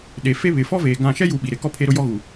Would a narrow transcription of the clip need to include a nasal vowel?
yes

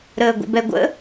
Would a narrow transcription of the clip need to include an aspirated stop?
no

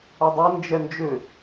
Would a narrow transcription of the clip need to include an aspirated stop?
no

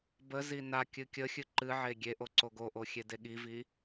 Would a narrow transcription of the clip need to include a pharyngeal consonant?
yes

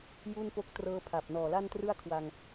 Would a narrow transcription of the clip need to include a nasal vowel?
no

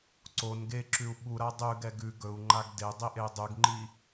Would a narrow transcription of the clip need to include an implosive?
yes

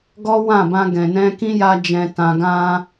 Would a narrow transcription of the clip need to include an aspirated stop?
no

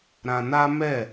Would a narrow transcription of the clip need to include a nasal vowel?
yes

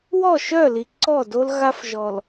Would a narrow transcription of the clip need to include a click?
yes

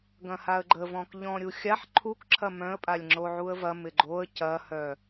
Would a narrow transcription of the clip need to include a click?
yes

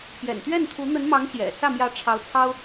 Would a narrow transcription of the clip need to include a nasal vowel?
no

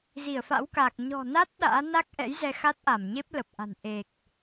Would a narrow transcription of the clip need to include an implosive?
yes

